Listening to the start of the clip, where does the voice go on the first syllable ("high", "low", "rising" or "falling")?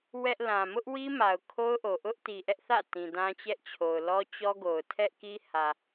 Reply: high